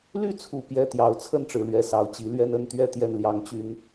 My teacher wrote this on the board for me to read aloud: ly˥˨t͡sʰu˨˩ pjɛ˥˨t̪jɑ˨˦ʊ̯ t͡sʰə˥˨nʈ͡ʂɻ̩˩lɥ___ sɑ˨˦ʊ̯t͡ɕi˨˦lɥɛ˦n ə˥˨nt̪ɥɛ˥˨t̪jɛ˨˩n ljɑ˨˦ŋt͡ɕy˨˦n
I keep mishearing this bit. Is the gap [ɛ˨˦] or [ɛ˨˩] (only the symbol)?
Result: ɛ˨˩